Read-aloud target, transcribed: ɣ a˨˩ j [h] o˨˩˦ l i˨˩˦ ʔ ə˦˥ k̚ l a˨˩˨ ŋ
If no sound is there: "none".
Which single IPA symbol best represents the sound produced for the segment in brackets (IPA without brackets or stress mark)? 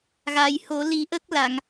h